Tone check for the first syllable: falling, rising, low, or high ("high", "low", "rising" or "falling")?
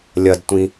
low